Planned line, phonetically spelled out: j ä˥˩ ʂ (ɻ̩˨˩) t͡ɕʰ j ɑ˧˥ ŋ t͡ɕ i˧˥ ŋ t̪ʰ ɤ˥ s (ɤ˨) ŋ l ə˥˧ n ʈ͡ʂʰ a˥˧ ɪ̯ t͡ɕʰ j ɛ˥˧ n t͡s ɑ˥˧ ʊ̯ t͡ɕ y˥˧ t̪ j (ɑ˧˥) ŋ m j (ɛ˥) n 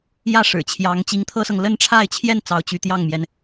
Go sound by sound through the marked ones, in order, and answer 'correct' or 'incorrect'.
correct, correct, incorrect: ɑ˥˩, incorrect: ɛ˩

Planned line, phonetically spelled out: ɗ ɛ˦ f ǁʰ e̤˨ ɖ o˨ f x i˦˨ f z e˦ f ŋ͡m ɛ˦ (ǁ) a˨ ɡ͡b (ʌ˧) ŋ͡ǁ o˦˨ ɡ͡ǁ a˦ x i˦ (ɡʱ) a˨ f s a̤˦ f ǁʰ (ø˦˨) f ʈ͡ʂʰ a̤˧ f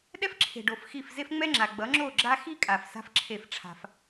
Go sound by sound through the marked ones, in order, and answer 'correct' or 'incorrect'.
incorrect: ŋ͡ǁ, incorrect: ʌ˨˦, incorrect: kʼ, incorrect: e˦˨

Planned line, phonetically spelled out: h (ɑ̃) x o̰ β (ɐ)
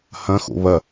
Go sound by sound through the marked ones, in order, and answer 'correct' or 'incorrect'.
incorrect: ɐ̃, correct

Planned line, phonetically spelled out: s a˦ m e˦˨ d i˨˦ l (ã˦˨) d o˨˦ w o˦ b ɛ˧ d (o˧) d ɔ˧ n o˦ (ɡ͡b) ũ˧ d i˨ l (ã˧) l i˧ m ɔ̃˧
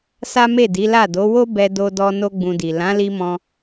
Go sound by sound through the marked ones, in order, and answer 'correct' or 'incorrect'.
incorrect: a˦˨, correct, correct, incorrect: ã˨˦

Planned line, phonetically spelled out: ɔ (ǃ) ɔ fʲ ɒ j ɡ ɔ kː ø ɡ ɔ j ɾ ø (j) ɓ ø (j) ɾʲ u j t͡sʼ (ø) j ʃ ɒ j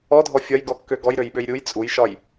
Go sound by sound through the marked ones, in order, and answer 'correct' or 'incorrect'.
incorrect: dʱ, correct, correct, incorrect: u

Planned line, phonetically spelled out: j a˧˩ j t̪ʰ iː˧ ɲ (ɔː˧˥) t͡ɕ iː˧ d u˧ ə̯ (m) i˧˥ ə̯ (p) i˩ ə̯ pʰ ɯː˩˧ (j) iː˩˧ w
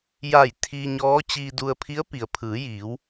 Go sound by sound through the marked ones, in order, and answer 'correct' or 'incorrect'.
correct, incorrect: pʰ, correct, correct

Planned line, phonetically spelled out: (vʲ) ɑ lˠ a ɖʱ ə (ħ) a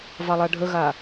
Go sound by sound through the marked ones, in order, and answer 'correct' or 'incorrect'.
incorrect: v, incorrect: ɣ

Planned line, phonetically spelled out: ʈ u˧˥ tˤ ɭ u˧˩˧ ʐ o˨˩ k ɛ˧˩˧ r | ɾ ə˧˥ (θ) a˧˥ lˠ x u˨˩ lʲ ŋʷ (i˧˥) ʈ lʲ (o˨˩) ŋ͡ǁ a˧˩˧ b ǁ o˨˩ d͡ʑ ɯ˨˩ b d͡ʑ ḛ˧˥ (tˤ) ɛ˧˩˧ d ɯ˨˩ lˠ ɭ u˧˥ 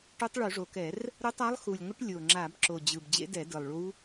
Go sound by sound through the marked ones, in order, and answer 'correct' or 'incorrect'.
incorrect: tˤ, incorrect: ɪ˧˥, correct, incorrect: d

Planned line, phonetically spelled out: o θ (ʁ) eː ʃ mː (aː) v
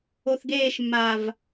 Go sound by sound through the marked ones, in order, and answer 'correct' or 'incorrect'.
incorrect: ɡ, correct

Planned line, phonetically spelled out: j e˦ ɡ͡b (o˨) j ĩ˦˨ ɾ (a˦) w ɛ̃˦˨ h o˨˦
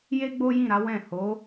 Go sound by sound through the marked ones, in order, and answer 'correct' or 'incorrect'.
incorrect: o˦, incorrect: a˨˦

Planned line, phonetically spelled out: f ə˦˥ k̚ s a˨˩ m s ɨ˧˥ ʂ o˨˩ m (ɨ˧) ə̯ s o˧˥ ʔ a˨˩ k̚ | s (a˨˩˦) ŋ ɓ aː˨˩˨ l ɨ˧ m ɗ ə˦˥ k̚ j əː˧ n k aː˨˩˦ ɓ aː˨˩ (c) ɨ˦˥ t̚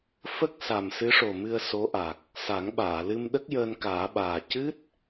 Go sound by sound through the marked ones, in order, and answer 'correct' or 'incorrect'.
correct, correct, correct

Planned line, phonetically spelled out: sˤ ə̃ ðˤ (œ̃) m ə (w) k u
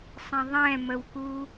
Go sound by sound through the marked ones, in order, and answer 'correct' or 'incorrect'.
incorrect: ɛ̃, correct

